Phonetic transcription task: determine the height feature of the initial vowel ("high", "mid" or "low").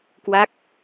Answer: low